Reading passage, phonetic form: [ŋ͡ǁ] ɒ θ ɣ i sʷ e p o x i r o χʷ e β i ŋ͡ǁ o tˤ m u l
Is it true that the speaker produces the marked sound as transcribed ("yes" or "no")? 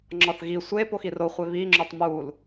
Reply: yes